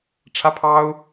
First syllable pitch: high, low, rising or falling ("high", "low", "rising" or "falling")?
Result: high